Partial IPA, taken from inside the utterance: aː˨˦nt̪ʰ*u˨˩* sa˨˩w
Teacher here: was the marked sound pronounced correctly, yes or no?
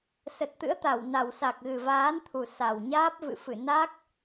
yes